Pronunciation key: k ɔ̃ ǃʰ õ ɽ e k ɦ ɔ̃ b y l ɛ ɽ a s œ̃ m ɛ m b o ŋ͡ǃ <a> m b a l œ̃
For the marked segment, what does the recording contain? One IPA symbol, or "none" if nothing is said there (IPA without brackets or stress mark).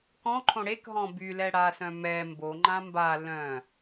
ã